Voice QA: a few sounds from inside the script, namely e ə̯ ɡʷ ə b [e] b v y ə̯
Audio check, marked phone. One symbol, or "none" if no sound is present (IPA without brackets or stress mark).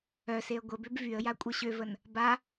ø